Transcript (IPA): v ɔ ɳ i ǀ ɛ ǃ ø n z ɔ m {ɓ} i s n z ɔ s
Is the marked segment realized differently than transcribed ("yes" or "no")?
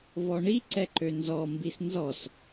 yes